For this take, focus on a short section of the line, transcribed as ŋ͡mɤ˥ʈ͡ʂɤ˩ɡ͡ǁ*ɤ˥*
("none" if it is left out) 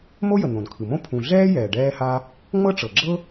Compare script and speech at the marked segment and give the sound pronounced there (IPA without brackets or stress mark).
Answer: ɤ˥